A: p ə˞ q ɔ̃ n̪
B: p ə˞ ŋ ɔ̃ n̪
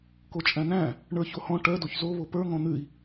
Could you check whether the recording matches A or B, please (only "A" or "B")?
B